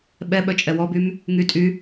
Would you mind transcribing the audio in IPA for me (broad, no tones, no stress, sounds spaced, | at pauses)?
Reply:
ɓ ɛ ɓ œ t͡ʃʼ ɛ w ɔ b y m | ŋ y tʼ y